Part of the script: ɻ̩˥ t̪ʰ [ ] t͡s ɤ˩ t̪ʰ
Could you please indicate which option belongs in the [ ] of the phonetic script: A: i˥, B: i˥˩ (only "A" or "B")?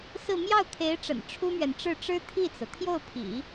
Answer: B